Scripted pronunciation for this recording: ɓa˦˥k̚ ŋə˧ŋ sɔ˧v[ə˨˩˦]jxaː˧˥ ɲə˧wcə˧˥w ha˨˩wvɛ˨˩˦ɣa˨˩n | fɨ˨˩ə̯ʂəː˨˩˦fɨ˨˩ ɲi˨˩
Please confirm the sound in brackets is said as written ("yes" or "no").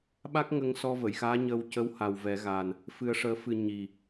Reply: no